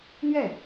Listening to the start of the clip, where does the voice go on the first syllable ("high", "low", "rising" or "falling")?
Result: falling